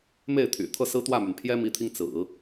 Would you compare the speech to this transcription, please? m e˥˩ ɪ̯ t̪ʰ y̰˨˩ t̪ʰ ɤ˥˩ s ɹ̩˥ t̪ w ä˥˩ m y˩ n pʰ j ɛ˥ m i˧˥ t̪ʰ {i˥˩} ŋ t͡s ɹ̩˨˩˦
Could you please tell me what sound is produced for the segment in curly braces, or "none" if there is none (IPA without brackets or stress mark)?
i˧